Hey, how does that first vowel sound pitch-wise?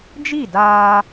falling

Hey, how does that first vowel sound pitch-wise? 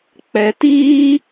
high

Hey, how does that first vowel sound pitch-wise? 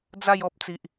falling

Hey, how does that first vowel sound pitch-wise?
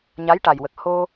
rising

